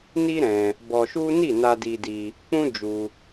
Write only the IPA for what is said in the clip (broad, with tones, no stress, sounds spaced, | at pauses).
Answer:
n i˦ ɾ ɛ̃˧ | b ɔ˧ ʃ u˦ n i˦˨ n a˧ d i˧ d i˧ | k͡p ũ˦ d͡ʒ u˧